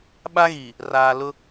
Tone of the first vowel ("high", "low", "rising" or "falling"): high